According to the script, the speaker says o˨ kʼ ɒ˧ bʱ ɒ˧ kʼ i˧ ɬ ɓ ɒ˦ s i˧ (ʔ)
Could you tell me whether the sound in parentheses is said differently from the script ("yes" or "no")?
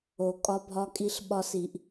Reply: no